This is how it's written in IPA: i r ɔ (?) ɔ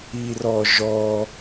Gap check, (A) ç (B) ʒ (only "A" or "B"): B